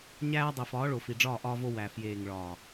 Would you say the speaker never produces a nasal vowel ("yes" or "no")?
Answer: yes